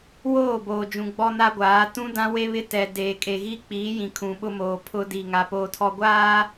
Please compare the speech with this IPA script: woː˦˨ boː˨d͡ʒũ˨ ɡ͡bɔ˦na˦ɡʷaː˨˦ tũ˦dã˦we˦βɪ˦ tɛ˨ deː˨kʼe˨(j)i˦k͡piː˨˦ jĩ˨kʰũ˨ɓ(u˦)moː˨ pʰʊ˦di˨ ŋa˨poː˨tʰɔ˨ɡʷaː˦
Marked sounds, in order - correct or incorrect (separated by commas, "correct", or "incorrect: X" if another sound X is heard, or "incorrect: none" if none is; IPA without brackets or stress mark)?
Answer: incorrect: ɣ, incorrect: ʊ˦